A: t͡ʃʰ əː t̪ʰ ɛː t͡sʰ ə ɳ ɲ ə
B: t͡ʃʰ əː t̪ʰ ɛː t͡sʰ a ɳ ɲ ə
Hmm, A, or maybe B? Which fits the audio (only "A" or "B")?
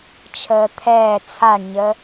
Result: B